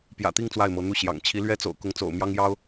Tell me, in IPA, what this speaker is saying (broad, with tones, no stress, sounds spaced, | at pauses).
p j ä̰˨˩ t̪ i˥˧ ŋ t͡s w a˥˩ ɪ̯ m ɤ˧˥ n̪ u˥˩ ɕ j ɑ̰˨˩ ŋ t͡ɕʰ i˧˥ l ɥ ɛ˥ t͡s o̰˨˩ ʊ̯ k ʊ˧˥ ŋ t͡s o̰˨˩ ʊ̯ m j ɑ˥ ŋ j ɑ˥ ʊ̯